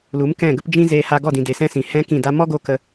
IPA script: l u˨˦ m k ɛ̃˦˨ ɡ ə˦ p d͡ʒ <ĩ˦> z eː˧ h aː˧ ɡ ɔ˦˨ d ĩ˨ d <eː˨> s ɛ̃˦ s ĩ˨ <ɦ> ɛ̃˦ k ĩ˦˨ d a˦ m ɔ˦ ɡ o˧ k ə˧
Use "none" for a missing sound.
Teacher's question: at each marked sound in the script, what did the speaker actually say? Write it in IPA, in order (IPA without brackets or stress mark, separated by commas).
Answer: ĩ˦, e˨, h